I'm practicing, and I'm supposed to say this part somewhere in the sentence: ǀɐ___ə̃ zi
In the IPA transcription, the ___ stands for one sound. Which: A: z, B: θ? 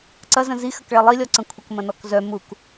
A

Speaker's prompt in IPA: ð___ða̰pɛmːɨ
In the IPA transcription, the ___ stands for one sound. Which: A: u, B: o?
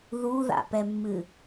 A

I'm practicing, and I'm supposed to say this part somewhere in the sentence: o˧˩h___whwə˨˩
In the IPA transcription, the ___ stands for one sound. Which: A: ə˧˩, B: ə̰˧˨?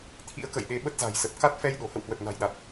B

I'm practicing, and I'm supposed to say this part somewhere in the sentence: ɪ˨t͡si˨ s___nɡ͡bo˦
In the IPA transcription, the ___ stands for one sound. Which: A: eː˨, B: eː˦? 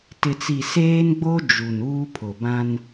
B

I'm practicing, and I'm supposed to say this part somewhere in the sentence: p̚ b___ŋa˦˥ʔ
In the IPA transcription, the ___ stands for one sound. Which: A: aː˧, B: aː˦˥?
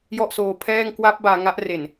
A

